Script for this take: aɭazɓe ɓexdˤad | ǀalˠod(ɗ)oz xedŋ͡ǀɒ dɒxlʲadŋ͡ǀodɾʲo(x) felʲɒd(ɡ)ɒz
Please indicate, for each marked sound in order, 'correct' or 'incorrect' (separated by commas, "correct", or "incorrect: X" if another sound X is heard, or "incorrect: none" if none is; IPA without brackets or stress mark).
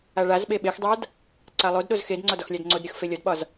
correct, correct, incorrect: ɓ